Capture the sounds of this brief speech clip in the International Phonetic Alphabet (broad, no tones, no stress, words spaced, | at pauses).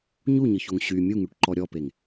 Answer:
ɲuɲɤçoŋ ɕy mʲuŋyʈǃɔ ɾʲɔpeŋ